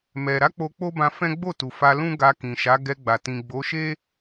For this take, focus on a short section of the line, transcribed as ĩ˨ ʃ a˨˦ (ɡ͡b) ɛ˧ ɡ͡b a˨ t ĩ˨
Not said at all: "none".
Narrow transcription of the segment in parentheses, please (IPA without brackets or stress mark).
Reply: ɡ